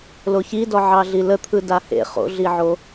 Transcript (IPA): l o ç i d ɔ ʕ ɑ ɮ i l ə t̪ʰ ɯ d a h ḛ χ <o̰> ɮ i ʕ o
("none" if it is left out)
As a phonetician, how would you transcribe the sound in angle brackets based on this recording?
o̰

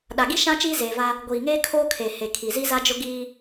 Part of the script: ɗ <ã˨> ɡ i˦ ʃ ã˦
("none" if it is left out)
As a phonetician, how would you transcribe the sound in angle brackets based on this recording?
a˨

